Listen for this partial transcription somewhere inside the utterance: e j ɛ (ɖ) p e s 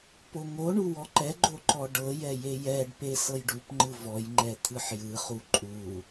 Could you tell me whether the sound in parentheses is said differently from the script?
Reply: no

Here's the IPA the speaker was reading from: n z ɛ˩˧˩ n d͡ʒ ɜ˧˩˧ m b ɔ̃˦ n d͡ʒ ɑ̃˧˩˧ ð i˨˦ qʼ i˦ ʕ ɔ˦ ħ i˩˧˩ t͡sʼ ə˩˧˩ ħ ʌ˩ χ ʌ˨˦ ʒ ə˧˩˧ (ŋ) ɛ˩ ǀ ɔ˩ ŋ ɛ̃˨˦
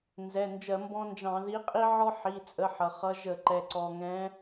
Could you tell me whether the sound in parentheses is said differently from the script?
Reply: yes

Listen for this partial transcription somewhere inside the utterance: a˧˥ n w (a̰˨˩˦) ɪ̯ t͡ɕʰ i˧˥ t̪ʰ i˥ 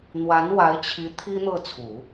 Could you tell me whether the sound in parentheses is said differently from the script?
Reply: yes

